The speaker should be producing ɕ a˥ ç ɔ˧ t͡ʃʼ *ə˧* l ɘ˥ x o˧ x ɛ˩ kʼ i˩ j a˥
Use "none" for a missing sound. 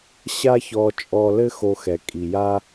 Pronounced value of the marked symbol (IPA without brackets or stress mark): ɔ˧